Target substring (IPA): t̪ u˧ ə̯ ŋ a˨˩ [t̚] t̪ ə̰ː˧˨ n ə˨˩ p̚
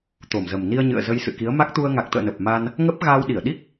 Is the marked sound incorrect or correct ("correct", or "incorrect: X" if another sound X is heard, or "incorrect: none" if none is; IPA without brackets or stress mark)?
incorrect: k̚